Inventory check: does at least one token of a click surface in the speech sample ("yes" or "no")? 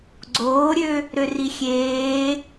yes